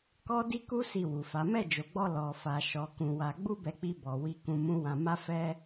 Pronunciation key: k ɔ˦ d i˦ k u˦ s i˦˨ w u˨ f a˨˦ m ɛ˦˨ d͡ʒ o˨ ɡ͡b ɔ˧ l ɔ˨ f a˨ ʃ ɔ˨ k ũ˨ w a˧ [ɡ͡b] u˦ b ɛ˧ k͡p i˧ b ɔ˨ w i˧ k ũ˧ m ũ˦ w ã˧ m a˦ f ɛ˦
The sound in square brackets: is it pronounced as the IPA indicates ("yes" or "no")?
yes